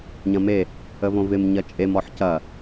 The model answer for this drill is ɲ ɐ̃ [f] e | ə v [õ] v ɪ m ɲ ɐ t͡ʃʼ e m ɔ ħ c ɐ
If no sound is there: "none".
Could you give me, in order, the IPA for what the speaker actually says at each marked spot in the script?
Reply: m, õ

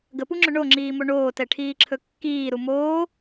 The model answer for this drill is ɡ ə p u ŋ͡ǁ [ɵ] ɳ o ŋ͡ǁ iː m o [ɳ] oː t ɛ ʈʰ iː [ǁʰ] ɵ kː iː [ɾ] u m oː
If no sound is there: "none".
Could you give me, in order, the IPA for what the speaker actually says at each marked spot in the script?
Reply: ɵ, ɳ, ǁʰ, ɾ

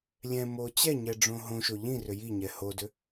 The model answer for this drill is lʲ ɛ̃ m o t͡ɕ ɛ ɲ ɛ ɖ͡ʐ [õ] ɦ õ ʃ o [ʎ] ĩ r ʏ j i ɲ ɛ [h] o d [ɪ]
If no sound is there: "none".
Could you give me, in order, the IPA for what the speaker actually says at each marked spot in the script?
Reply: õ, ʎ, h, ʏ

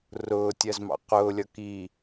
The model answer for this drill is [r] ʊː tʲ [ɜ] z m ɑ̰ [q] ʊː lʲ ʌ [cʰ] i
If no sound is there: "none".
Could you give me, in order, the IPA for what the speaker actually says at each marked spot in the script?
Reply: r, ɜ, q, k

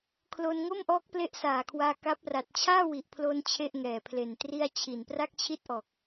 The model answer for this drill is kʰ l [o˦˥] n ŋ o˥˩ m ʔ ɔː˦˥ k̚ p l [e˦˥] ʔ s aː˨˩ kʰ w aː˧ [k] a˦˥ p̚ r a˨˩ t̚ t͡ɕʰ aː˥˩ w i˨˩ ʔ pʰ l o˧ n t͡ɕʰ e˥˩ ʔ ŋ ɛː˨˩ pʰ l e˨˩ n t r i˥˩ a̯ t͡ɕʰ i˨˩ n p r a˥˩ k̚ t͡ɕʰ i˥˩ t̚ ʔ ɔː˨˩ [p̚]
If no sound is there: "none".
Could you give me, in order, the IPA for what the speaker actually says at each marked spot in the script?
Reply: o˧, e˥˩, k, k̚

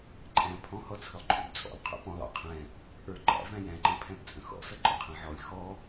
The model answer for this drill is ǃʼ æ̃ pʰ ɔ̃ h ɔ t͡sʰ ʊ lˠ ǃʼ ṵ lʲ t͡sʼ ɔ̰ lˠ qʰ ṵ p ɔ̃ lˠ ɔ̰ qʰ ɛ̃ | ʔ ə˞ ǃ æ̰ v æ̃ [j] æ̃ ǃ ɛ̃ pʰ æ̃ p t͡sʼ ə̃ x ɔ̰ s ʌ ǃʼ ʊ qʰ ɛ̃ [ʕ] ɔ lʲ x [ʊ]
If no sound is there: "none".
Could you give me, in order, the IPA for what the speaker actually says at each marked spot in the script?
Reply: j, ʕ, ɔ

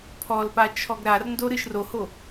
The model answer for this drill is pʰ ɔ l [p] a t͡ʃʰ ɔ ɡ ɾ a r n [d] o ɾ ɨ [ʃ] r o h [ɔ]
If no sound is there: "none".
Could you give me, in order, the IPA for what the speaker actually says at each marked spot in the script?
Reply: p, d, ʃ, o

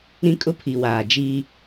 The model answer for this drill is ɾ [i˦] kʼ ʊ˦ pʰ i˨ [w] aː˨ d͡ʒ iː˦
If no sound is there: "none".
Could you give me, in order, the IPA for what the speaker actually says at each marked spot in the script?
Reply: ĩ˦, w

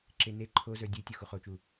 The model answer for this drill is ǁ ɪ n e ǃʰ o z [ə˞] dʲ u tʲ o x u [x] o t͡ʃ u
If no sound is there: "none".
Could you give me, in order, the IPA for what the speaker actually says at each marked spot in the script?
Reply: ə˞, χ

